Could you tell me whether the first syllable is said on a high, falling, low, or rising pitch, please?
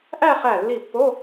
falling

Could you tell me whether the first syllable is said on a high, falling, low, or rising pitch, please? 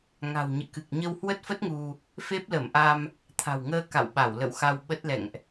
low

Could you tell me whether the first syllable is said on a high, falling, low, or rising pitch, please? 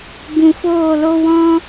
low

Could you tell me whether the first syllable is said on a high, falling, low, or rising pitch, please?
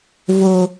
low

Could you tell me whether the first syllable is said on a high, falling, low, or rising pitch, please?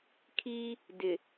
high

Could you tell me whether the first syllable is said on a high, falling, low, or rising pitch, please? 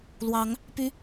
rising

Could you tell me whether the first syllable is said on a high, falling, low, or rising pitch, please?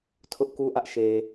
high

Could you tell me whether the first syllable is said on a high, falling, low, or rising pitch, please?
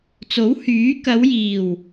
rising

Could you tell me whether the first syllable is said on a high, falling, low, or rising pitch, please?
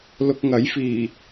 low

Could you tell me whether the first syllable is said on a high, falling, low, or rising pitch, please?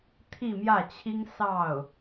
falling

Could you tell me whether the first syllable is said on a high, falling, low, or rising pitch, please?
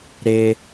high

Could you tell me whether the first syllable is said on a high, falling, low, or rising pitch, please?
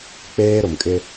high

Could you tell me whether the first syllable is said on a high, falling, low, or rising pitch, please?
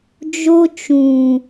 high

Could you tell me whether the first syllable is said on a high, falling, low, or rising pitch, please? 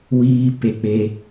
high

